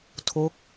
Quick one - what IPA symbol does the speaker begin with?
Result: tʰ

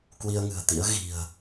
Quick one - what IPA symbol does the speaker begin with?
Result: k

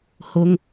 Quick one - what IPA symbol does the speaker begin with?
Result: h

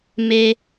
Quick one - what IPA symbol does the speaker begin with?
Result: m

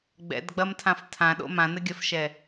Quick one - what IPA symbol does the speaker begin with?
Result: ɡ͡b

